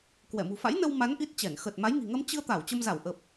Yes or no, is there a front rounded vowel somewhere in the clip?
no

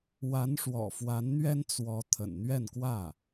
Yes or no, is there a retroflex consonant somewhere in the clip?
yes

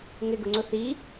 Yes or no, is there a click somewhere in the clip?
yes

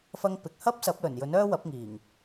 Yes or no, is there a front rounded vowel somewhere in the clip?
yes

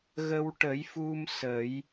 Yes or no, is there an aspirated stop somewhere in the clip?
no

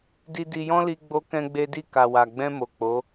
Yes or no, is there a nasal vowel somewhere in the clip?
yes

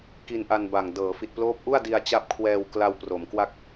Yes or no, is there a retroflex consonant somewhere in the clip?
no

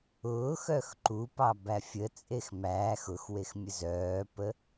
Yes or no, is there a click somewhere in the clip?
yes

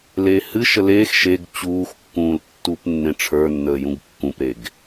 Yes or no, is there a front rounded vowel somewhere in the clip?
no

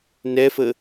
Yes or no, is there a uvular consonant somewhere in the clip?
no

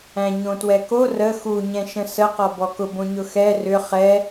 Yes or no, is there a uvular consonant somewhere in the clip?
yes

